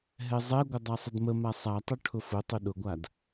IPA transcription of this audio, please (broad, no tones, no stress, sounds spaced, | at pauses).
ɦ ɛ zˤ ɛ ɡʷ ə dˤ a sˤ ʊ d m ə m a sˤ a tˤ o ʈʰ ʊ f ʊ tˤ ʊ ɗ ʊ ɡʷ a d